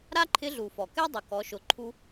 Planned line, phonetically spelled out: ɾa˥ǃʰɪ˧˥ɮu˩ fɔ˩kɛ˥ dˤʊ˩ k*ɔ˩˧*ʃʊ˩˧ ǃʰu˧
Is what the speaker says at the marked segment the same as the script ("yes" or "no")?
yes